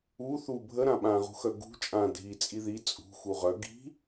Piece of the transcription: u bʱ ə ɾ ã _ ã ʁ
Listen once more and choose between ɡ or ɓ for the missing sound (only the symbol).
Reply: ɓ